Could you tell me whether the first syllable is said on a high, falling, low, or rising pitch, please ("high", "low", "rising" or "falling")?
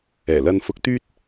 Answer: low